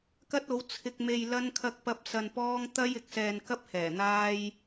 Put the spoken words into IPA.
kɐ˥t̚o˨˥w t͡sʰɪ˧k̚me˧jlɐ˥n kʰɐ˥k̚pɐ˥p̚ sɐ˧npɔː˥ŋ t̪ɐ˥jɪ˨k̚sɛː˧nkɐ˥p̚ hɛː˨˩n̪aː˥j

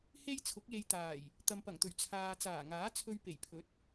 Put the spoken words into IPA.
he˥jt͡sʰʊ˨˥k̚je˧jt̪aː˨˩j | t̪ɐ˨mpɐ˨˩ŋt̪ɵ˨˩ɥ t͡sʰaː˧ t͡saː˨˩ŋaː˨˥t͡sʰɵ˧ɥ pe˨˩jpʰɵ˨˥t̚

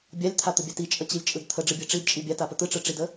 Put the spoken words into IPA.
bʲalʲt̪ʰat̪əbʲa tit͡ʃʼət͡ɕilʲt͡ʃʼɯd t̪ʰəɖ͡ʐɯbʲɯ ʈ͡ʂidt͡ʃʼi bʲatapə t̪ɯʈ͡ʂɯʈ͡ʂidə

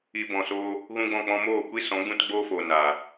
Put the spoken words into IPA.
i˧bɔ̃˨so˦ | ɣũ˦ɡ͡bɔ̃˦˨k͡pɔ̃˦ moː˦˨kʷi˦ sɔ̃˨˦ɡ͡bũ˦tɡ͡boː˦foː˨ na˨

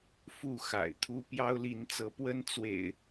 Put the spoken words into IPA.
fu˥˨ xa̰˨˩ɪ̯t̪ʰu˦ pjɑ˦ʊ̯li˨˦nt͡sɤ˨˦ pwə˦n t͡swḛ˨˩ɪ̯

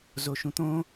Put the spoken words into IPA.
zoʃũt̪õ

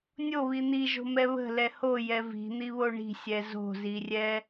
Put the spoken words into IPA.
nʲoβi n̪iʒo̤mɛ βə̤lɛ hojɛ vi̤n̪iβo ɳi̤sʲɛ zo̤zirʲɛ

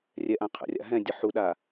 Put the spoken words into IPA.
rʲɛʔãqʰə̰rʲa̰ ɦɛ̃dʲə ħuɗa

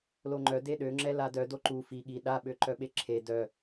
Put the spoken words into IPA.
loŋ͡ǃœ deɗø ŋ͡ǁɛladœ doǃu fi ɠi ɗaɓø ǃœɓeǁʰe dœ

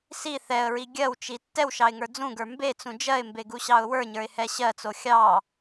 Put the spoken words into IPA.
si θɛə̯ɹi ɡʲɜwt͡ʃi tːɛwʃɑɪ̯ŋə˞ d͡zũɡə˞ mbet͡sũ d͡ʒɜɪ̯mbeɡuɕɑʊ̯ wə˞ɲə˞ɪ̯hɛ ɕɜt͡so xʲɑ

